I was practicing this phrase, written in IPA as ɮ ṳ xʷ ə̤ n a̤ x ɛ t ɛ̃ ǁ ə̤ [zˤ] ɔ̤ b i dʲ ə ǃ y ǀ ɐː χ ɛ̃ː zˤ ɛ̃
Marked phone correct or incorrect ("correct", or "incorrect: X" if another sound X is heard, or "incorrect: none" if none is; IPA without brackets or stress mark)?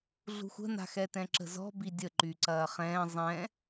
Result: incorrect: z